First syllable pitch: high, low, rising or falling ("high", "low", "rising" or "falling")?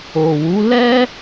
low